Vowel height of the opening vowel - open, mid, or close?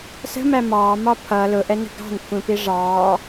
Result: mid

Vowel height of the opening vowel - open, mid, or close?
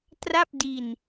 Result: open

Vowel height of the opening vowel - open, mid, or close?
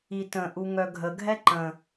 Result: close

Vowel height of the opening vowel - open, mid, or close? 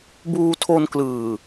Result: close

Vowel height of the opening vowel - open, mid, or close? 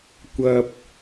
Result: open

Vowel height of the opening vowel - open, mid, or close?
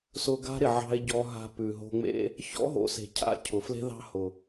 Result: close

